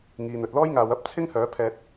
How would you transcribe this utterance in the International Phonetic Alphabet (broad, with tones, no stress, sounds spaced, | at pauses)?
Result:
ŋ iː˨ n̪ ɵ˨ t̚ l ɔː˥ j ŋ aː˨˧ w ɐ˥ p̚ t͡sʰ ɪ˥ ŋ h œː˨˥ pʰ ɛː˧ t̚